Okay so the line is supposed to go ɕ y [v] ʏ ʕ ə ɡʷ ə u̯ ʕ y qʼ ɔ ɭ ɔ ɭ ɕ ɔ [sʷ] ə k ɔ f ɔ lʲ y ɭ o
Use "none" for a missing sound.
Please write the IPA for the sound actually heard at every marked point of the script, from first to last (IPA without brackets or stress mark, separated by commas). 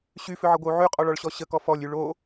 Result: f, ɕ